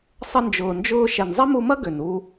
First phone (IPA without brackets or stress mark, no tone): sˤ